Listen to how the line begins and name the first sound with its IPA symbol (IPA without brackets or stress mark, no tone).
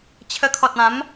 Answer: t͡ɕʰ